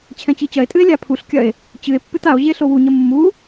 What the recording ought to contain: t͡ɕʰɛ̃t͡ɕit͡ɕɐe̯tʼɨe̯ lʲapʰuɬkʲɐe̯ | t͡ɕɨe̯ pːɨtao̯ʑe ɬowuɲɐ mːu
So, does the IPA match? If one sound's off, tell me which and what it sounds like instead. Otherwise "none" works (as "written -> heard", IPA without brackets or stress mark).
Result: none